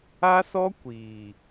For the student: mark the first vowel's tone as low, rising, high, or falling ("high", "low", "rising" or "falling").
high